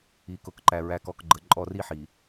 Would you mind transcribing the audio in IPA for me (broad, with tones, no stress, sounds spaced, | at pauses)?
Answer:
i˨ k ʊ˨ k ǃ æ˨ ɹ æ˨ k ɔ˨ k ɡ͡ǃ ə˨ ǃʼ ɔ˦˨ r i˦ ħ i˨